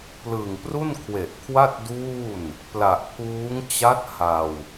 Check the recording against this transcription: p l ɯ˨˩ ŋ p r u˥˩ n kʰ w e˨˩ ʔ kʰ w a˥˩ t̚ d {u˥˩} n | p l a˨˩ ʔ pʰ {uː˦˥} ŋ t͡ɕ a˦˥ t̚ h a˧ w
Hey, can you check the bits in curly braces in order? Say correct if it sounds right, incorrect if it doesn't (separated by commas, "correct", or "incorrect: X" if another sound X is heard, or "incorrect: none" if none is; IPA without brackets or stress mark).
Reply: incorrect: uː˥˩, correct